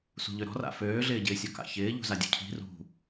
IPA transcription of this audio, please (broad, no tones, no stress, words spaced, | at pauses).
sṳʎøɾɔ̤ra̰ føːɮɪːɟɪːsʲɔ ka̰çɪː ʎṳzadʲṵcʰi̤ rṳ